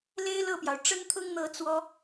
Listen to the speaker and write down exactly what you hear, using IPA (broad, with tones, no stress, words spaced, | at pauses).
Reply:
le˥ɪ̯ lɤ˥˩pjɑ˩ʊ̯ ʈ͡ʂə˥nt̪ʰʊ˥ŋn̪ɤ˧˥ t͡swɔ˥